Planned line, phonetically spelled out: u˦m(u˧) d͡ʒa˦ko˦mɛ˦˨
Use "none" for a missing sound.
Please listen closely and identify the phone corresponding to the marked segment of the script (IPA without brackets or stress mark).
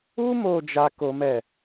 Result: o˧